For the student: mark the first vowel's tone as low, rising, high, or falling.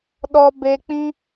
high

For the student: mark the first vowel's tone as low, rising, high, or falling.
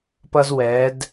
high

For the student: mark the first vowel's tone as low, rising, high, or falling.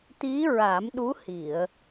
rising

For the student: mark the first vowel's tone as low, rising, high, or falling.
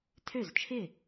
falling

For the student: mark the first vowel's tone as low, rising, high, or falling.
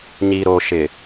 low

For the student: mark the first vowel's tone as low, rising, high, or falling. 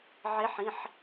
rising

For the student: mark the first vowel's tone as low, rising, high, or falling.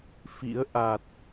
rising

